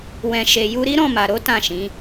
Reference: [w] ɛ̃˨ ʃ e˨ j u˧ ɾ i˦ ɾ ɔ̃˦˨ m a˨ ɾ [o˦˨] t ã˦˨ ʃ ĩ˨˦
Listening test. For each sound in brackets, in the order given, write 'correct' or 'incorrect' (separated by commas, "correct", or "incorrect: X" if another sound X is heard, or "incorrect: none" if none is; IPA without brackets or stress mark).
correct, incorrect: o˨˦